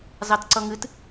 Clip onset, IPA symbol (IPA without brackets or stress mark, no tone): z